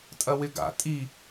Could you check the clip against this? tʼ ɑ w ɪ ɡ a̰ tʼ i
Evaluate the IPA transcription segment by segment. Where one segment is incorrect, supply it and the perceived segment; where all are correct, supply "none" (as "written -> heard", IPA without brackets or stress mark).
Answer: ɑ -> ɐ